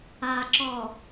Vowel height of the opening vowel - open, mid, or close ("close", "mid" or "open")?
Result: open